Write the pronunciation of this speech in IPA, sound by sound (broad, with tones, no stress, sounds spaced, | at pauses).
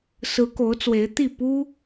s ɹ̩˧˥ k o˧˥ ʊ̯ t͡s w e˧˥ ɪ̯ t̪ i˥˩ p u˥